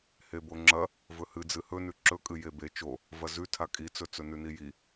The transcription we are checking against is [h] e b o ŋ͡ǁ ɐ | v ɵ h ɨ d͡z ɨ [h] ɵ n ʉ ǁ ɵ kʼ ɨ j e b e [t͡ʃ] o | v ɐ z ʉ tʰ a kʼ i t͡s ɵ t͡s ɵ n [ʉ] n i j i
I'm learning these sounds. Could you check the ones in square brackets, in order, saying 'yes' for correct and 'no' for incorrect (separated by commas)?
yes, yes, yes, yes